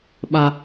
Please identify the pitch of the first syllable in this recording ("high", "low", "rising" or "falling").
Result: high